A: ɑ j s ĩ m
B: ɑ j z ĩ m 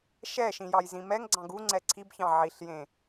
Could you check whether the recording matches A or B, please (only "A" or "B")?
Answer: B